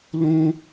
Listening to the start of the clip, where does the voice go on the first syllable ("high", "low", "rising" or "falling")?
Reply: high